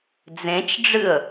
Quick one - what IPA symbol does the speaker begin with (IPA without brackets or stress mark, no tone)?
d͡z